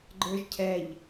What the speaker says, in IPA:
ɡ͡ǃə˞ʒcʰɛʎ

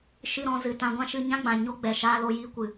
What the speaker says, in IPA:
ʃɨ˧ɾɔ̃˧zɨ˨ tã˧ɡʷã˦ʃɨ˧ ɲã˦ɡ͡bã˨ ɲo˦ɡ͡bɛ˨ ʃaː˧lo˧jiː˧ kʷɨ˨

